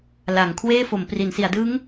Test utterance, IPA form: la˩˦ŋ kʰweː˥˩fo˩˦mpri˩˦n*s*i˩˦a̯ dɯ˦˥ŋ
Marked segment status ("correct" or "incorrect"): correct